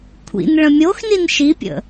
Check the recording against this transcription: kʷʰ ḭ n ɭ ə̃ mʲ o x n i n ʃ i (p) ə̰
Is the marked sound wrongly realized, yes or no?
yes